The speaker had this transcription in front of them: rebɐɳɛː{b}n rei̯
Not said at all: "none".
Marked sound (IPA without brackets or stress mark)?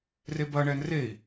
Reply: none